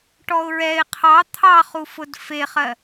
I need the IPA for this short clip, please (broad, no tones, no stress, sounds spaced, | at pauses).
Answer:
ʈ ɔ ʊ̯ ɹ ɛ ɪ̯ qʰ ɑ t̪ʰ ɑ χ u f ʊ d f e χ ɜ